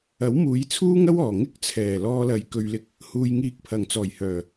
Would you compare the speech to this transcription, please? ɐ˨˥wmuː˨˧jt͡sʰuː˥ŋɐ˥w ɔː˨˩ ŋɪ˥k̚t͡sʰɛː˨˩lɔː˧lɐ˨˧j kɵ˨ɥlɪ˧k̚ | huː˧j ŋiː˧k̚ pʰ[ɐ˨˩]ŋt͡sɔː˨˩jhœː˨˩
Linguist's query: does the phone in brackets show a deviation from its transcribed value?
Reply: no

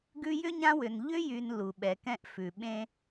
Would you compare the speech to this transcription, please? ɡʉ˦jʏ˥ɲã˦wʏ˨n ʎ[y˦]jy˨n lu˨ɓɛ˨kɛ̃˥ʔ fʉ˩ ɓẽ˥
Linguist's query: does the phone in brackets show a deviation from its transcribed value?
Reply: yes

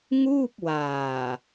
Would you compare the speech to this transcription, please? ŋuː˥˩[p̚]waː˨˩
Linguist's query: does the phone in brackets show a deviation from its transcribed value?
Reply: no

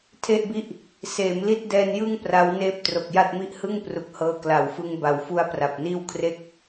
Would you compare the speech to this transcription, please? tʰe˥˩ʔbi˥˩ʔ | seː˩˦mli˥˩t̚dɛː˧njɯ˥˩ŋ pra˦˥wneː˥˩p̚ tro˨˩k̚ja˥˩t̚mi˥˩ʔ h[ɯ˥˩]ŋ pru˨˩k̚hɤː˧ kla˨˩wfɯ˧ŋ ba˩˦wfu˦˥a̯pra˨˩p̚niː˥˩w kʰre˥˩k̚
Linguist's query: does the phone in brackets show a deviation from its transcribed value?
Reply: no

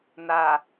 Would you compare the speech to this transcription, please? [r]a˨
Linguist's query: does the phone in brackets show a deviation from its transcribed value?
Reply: yes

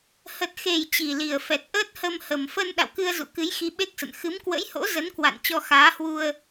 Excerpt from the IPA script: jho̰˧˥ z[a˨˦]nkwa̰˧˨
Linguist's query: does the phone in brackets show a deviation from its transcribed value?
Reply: yes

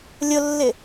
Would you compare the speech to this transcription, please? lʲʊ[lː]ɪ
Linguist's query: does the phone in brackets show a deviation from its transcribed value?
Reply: no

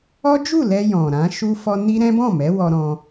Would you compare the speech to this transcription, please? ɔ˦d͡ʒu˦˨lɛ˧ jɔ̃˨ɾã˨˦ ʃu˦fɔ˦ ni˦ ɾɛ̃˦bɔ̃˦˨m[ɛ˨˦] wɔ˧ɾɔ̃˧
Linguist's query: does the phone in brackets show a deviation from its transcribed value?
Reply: no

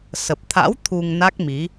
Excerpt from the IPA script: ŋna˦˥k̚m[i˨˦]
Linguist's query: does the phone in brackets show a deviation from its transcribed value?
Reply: no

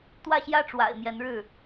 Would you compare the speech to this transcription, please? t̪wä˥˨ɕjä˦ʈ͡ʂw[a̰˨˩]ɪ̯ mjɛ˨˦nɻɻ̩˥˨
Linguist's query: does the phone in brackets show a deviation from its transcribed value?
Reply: no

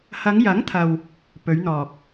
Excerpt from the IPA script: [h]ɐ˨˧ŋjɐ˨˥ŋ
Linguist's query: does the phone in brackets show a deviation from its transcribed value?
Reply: no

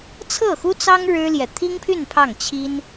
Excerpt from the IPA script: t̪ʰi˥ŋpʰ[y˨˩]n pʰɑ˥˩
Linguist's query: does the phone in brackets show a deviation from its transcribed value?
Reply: yes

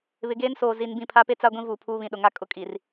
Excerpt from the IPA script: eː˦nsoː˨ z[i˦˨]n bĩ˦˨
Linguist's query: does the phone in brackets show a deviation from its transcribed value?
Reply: yes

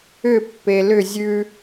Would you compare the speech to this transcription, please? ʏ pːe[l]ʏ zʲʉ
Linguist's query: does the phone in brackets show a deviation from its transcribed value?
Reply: no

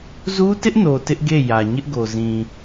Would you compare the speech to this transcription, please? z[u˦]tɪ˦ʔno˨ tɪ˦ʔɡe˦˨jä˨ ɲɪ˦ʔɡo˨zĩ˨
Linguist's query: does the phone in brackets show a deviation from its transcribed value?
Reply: no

